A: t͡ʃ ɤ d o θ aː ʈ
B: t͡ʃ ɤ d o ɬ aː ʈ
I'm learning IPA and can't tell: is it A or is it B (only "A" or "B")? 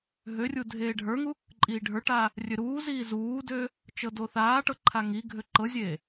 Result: A